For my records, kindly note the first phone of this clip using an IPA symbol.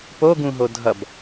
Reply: p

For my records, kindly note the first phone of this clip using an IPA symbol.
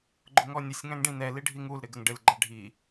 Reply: ɡ͡ǃ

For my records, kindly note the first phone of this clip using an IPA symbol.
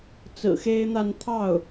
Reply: t͡s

